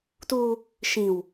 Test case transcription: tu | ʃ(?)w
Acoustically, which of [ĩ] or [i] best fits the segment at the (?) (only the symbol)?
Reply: ĩ